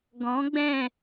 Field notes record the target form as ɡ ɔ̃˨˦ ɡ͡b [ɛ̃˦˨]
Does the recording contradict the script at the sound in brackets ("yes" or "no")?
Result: no